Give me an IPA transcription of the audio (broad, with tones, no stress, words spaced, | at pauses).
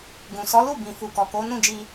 ɡũ˨sɔ˨˦lu˦˨ bĩ˨fu˨ kɔ˨ko˨˦nũ˦˨d͡ʒi˧